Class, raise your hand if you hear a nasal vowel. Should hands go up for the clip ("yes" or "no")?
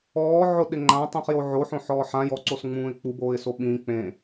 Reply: yes